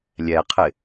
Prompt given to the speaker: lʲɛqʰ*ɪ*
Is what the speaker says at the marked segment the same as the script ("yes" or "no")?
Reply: yes